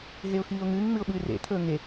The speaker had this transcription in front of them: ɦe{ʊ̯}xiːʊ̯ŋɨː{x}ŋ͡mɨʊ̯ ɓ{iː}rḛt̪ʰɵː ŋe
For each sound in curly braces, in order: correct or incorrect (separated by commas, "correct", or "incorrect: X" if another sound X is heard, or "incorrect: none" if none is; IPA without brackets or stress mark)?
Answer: correct, incorrect: ŋ, incorrect: ɨː